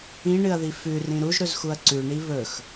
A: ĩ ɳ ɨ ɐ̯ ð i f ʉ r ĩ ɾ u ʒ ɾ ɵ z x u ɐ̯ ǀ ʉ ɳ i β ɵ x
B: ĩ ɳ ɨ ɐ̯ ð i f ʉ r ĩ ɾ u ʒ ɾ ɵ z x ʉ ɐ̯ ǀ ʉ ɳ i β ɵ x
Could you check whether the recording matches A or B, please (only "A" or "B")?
A